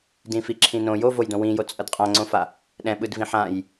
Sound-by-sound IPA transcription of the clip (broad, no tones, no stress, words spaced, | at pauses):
dĩfiǁʰĩnõ jovojdõ wĩjo t͡sʼʌdqʼãŋ͡ǀõfa | ɗɛ̃ɓɯdvĩ ħãj